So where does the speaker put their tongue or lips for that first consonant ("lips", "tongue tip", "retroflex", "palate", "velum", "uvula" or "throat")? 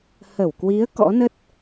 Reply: throat